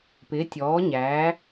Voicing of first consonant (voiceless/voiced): voiceless